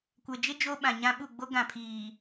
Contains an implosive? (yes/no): yes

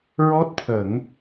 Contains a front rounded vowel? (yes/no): no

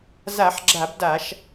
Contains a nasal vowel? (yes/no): no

